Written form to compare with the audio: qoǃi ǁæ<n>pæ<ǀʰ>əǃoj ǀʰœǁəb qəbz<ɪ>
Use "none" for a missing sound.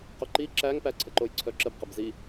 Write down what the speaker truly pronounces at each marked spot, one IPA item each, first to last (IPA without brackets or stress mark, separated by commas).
ŋ, ǀʰ, i